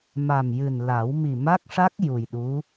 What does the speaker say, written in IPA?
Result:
m a˨˩ m j ɨ˨˩ n l a˨˩˦ w m i˨˩ m a˦˥ k̚ ʂ a˦˥ k̚ j u˨˩ j ɗ u˧˥

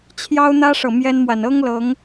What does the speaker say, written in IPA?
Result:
t͡ɕʰ j ɑ˦ ʊ̯ n̪ ä˦ ʂ ɤ˨ m j ɛ˦ n m w a˨ n ɤ˦ ŋ l ɤ˨˦ ŋ

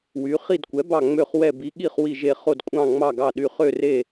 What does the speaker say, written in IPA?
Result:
w y˨˥ χ i˦˨ d kʷ ɛ˨˥ b ɑ˦˨ ŋ͡m ø˦˨ χ w ɛ˦˨ b i˨˥ ɠ i˦˨ χ w i˦˨ ʒ e˦˨ χ o˦˨ d kʷʼ ɑ̃˦˨ ŋ͡m ɑ˦˨ ɡ ɑ˦˨ ɗ y˦˨ χ ø˦˨ r e˦˨

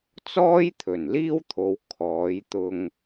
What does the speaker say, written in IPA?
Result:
t͡s ɔː˥ j t̪ʰ ɵ˨˩ n l iː˥ w t̪ʰ o˨˧ w kʰ ɔː˨˧ j t̪ ʊ˧ ŋ

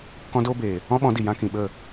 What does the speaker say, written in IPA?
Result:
k ɔ̃˧ d oː˧ b eː˨ | ɔ̃˦ ɓ ɔ̃˨˦ d i˨ j ã˧ k ĩ˨ ɓ ə˦˨

